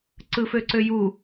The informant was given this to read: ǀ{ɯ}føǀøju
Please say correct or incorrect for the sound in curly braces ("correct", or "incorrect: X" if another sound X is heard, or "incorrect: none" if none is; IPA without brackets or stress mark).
correct